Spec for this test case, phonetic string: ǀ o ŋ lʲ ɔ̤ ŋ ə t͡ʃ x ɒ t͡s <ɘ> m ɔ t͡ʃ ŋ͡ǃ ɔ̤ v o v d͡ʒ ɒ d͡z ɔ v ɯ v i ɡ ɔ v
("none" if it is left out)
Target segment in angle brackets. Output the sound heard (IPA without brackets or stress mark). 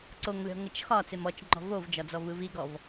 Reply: e